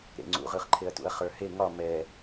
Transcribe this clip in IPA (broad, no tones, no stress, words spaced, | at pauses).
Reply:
ɾḛ ŋ͡ǀṵʁɯχǃʰeɐ̯ tṵɐ̯χə˞he ŋɒ mɛ